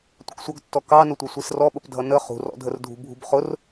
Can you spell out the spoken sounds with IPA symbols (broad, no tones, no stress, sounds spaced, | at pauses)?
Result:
tʷ ə k sʷ ʌ ɡ tː ɔ k ɑ n ʊ tʷ ʌ sʷ i s r ɔ ɓ ə p dʱ ʌ n ə χ ṳ r ɔ̰ dʱ ə r dʱ ṳ bʱ ṳ b χ ʊ r